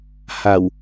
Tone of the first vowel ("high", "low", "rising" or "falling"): low